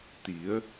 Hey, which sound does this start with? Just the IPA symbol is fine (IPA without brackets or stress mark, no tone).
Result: t̪